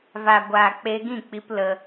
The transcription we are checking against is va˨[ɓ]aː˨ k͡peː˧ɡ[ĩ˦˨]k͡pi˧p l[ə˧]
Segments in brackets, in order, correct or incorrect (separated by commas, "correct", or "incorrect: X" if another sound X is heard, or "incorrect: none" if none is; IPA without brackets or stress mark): incorrect: ɡʷ, correct, correct